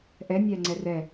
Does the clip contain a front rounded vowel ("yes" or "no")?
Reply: no